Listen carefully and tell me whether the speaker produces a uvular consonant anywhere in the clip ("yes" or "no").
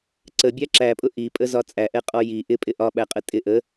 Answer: yes